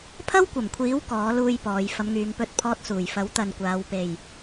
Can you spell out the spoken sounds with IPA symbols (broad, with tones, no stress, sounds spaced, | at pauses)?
pʰ ɐ˥ w kʷ ɐ˨˩ m kʷʰ iː˨˥ w k ɔː˨˥ l uː˧ j p ɔː˨˧ j f ɐ˨˧ m ŋ yː˨˧ ŋ p ɵ˧ t̚ pʰ ɔː˥ t̚ s uː˨ j f ɐ˨˥ w t̪ ɐ˨ n kʷ aː˨˧ w p e˨ j